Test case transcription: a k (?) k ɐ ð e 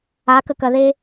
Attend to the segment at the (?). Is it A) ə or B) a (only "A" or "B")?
A